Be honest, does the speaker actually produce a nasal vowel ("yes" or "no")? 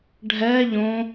yes